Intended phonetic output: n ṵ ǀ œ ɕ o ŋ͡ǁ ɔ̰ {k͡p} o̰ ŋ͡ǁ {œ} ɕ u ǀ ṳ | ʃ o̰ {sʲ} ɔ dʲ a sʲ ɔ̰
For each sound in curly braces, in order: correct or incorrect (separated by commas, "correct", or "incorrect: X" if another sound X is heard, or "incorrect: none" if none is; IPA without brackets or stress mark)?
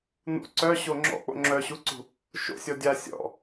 correct, correct, correct